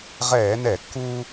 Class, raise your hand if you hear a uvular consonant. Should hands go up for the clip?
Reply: yes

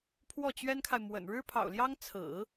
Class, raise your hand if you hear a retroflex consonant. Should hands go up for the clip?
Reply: yes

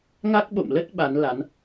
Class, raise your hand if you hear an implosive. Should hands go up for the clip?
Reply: yes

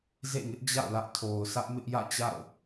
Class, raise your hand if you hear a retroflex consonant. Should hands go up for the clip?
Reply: no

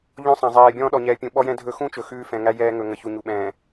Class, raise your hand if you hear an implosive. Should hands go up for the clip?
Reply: yes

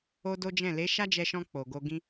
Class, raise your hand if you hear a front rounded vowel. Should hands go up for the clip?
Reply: no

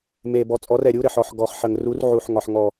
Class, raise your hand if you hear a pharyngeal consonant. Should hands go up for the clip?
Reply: yes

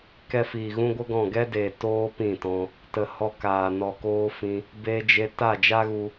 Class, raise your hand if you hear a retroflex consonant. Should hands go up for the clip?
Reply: no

